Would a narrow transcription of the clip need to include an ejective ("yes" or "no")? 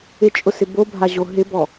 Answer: yes